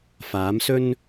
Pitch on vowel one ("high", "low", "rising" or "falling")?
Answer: rising